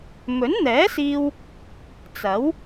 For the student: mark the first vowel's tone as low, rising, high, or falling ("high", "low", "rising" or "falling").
rising